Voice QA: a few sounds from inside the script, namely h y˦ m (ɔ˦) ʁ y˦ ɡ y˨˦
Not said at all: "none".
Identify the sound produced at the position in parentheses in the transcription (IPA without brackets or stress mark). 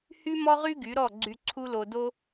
ɔ˦